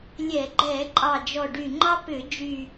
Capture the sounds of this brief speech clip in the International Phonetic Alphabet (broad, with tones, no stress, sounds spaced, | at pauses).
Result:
lʲ ɛ˧˩˧ ɡ͡ǃ ɛ˧˩˧ ǃʼ ɑ˨˩ d͡ʒ ɔ˨˩ ɖ y˨˩ ŋ͡ǃ ɑ˥ p ʏ˧˩˧ d͡ʒ y˨˩